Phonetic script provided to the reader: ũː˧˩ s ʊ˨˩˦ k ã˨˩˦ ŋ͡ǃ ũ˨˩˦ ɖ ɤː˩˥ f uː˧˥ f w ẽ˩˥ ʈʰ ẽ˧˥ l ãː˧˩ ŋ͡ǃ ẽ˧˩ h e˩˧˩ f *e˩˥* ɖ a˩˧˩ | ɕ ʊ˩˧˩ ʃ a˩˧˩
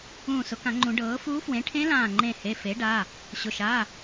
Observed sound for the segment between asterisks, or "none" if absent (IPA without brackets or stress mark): e˩˥